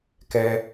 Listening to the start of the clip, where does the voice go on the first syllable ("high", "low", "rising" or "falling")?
high